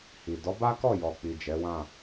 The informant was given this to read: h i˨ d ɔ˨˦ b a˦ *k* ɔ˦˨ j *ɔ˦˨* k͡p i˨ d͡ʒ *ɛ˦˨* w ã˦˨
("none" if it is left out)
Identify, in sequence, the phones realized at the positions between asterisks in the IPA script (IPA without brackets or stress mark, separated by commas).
k, ɔ˨, ɛ˨˦